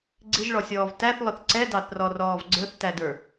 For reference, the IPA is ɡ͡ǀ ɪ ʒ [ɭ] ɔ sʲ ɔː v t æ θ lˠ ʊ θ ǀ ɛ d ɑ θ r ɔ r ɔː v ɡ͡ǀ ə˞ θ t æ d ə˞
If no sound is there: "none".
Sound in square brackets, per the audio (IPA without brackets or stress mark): ɭ